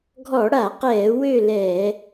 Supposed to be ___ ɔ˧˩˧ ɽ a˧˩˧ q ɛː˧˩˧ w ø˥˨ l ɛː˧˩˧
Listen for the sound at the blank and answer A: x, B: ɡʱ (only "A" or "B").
B